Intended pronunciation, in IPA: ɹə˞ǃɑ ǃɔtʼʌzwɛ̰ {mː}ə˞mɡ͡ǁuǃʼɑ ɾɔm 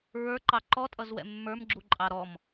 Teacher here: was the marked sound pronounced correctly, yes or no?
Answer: yes